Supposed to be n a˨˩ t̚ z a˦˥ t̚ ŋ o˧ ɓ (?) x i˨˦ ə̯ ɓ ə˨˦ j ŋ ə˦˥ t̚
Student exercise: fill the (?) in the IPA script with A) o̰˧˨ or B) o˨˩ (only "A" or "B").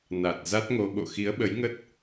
A